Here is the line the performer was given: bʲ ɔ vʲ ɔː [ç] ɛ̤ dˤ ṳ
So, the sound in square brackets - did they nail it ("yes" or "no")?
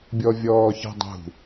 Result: yes